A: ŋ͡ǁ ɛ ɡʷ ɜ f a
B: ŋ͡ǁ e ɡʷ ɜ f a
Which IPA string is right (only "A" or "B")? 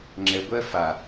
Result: A